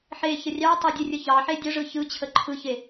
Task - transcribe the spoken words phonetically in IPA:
ħ e ç ə rʲ ɑ tˤ e dʲ e rʲ ə ç ɑ ħ e dʲ ə ʐ ɯ ç ɯ t͡ɕʰ ə ǃʰ ɯ ç e

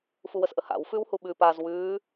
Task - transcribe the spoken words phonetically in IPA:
f u w ə s ʔ ə h a̰ w f ʉː w h u ɓ ʉ p a z w ʉː

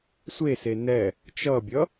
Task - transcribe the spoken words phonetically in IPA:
sʷ e s e n ɛ | t͡ʃ ʌ bʲ ʌ

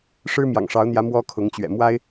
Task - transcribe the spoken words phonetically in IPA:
ʂ ɻ̩˥ m j ɑ̰˨˩ ŋ ʂ ɑ˧˥ ʊ̯ n̪ j ä˧˥ m w ɔ˥ kʰ ʊ˧˥ ŋ t͡ɕ ɥ ɛ̰˨˩ m w a˥ ɪ̯

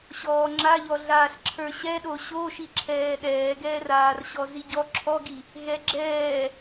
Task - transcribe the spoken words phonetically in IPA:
ɕ ɔː ŋ͡ǁ a ʎ ɔ ɮ aː ɬ ǁʰ ə˞ ɕ ɛ ɗ o ɕ o ʃ i ǁʰ ɛː ɗ ɛː ɡ ɛː r aː r ɕ ɔ z i ɟ ɔ ǁʰ ɔ ɡ i | ɣ ɛ ɡ͡ǁ ɛː

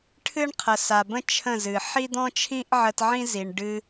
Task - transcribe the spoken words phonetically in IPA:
ʈʰ ɨ˦ ɳ qʰ ə˨ s a˨ b ə̃˦ t͡ʃʰ ə̃˦˨ z ɨ˨ ħ i˦ d̪ ɔ̃˦ t͡ʃʰ ĩ˦ ʔ ʕ ə˧ t ʕ ĩ˦ z i˨ ɳ ɖ ɨ˧

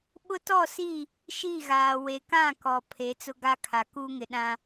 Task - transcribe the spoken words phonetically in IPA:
ɓ ʊ˦ t ɔ˦˨ s i˦˨ | ʃ iː˦˨ ɣ aː˨ w e˨ k ã˦˨ k ɔ˨ pʰ e˨˦ t͡s ʊ˦ ɡ a˦ kʰ a˨ k uː˦ ŋ ɪ˨ ɗ ã˦

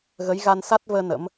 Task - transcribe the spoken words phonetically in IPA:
ɣ ə˨˦ j ɣ a˧ n s a˦˥ t̚ v əː˧ n ə̰˧˥ m

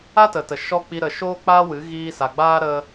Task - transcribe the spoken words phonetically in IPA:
a˦ t ə˨ t ə˨ ʃ ɔ˧ k͡p i˧ ɾ ə˨ ʃ oː˦ k͡p aː˦ w ɨ˨˦ ɣ iː˧ s a˨ ɡ͡b aː˦ ɾ ə˧

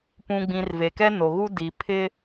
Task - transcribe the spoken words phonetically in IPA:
p ũ˨ ɡ͡b ĩ˨ r v e˨ k ɛ˦ n o˨ ɣ u˦ d i˨ pʰ ɪ˦

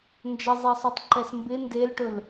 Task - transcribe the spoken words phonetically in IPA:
n d͡ʒ ə zˤ e sˤ o tˤ ǃ ɛ s m b ɪ n d e l ʈ ɵ l

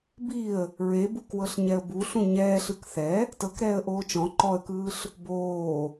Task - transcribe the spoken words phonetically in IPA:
b i ə̯ | ɹ e b u k w ɤ ɬ ɲ ɛ ə̯ b u ɬ ũ ɲ ɛː ɬ ɯ k θ ɛ | t ɤ k ɾ ɛː ə̯ ʔ oː t͡ʃ ɔ̃ ǃ ɔ ə̯ k ɯː ɬ | b oː

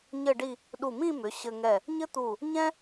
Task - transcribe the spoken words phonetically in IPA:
ɲ ɘ˥˧ ɖ i˥˧ | ɗ u˧˩ m ĩ˥˧ m ʏ˩˧ ɕ ɘ˧ ŋ ɛ˧˩ | ɲ ɘ˥ t̪ u˧˩ | ɲ ɛ̃˥

